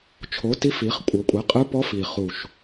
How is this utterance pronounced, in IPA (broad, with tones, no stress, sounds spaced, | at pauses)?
t͡ʃʰ o˩˥ t i˧˥ f i˩˧ χ kʷʼ ɤ˩˧ kʷʼ ɛ˩˥ qʼ ɯ˧˥ p ɔ˧˥ f i˨˩ χ u˨˩ ʃ